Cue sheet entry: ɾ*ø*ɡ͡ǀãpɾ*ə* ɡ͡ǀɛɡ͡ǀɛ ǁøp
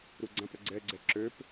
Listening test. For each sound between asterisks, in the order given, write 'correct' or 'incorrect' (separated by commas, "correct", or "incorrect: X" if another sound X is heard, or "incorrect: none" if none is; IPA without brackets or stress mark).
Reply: incorrect: u, correct